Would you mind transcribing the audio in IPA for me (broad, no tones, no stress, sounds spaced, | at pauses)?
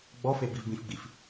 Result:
ɡ͡b ɔ f e b i v b ĩ f ɡ͡b i f